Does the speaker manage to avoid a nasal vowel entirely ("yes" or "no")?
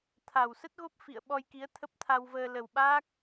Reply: yes